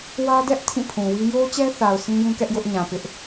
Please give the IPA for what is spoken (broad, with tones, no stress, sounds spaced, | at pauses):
w ä˦ d ɛ˦ ʔ tʰ ĩ˦˨ pʰ ũ˨ w i˦ j o˦ t͡ɕ ɛ˦ θ a˨ ʊ̯ sʰ ĩ˦ j ũ˦ k ɛ˦ ʔ j ʊ˦ ʔ ɲ ã˨ p ɪ˦ ʔ